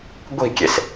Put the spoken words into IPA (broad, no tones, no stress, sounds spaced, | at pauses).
ɡʷ i̤ kʲ e s